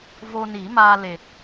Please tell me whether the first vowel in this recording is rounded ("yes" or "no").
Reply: yes